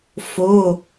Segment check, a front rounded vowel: absent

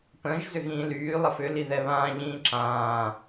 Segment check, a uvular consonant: absent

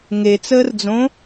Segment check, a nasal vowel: present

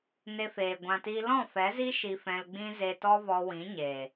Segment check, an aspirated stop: absent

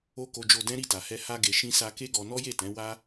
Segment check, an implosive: absent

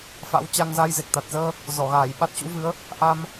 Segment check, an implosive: present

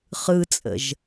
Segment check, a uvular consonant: present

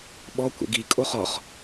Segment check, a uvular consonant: present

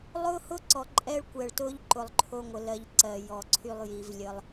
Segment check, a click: present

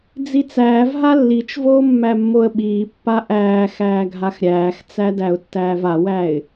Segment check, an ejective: absent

